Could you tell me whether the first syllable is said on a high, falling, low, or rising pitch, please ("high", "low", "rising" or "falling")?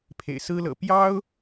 low